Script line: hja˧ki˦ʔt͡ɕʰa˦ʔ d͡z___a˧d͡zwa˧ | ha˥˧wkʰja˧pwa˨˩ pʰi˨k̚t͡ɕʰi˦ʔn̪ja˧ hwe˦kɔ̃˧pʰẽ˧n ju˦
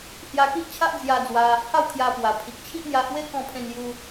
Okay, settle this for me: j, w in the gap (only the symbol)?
j